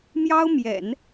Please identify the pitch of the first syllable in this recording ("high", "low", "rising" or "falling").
high